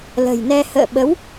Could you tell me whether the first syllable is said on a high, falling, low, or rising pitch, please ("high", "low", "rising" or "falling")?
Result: low